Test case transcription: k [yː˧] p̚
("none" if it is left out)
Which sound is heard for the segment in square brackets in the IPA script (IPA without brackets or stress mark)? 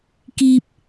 iː˧